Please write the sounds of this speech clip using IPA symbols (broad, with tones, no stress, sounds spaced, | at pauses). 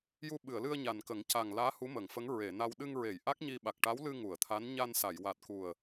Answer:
j u˧ ɓ ɨ˨˩˨ ə̯ l ɨ˧ ə̯ ɲ a˨˩ n k ə˨˩˦ ŋ c a˨˩ ŋ l aː˧˥ h u˧˥ m ə˨˩˨ ŋ f ə˧˥ ŋ ɹ e˨˩˨ n a˧ w ɗ ɨ˧ ŋ ɹ e˨˩˨ j ʔ a˦˥ k̚ ɲ i˧ ɓ a˨˩ k̚ ʈ a˧˥ w l ɨ˧ ŋ u˨˩˨ ə̯ t̪ʰ a˧˥ n ɲ a˧ n s a˨˩˨ j w a˨˩ t̚ k u˨˩ ə̯